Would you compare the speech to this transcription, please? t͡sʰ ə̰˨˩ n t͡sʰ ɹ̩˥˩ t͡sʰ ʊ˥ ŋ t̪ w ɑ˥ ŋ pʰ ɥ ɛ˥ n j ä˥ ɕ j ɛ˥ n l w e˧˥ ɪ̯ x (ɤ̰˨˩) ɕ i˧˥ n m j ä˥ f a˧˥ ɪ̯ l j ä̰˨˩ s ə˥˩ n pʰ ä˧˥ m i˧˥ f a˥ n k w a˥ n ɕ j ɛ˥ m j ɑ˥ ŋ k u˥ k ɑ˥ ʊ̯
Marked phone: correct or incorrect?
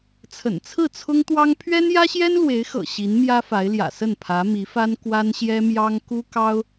correct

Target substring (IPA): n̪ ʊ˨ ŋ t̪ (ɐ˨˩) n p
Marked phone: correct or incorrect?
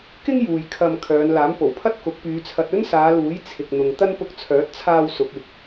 incorrect: ɐ˥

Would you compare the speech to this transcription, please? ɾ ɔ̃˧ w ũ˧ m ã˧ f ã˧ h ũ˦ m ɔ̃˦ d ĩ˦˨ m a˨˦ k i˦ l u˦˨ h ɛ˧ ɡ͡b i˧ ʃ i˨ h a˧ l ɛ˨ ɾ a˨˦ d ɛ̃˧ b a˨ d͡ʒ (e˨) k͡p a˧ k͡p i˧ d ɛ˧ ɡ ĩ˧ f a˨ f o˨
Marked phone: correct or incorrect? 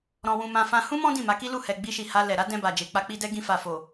correct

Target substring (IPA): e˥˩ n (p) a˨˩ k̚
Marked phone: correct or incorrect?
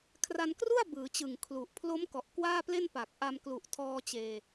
correct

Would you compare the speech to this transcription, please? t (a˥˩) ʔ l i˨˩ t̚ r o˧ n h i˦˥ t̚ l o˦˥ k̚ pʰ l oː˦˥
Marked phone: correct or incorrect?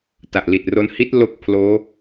incorrect: a˨˩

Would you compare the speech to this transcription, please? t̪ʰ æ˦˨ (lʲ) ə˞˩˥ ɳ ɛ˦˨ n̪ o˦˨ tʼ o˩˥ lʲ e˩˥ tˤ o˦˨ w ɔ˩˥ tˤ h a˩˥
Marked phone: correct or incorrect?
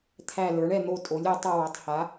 incorrect: l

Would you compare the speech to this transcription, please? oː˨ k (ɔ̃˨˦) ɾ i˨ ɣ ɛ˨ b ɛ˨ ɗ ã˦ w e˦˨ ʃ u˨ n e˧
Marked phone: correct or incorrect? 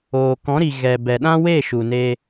correct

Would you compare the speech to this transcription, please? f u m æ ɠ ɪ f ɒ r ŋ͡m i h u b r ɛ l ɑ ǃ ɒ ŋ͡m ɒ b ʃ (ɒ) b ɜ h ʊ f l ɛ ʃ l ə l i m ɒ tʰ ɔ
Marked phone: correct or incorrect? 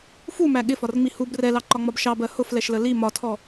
incorrect: ɑ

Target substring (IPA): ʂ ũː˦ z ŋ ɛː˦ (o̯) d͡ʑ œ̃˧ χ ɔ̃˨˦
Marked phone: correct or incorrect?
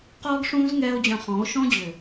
correct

